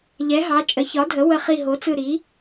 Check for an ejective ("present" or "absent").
present